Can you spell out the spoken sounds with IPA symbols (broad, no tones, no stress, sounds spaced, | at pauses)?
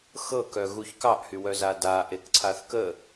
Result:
x ɤ k œ ɣ u ç k ɑ ʔ h y w œ z a d a ʔ e k ǀʰ a θ k ə